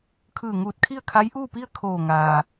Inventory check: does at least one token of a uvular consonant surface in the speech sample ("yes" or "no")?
no